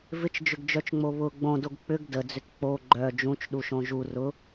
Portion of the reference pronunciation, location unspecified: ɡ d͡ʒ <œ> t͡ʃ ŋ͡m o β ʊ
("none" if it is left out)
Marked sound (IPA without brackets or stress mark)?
œ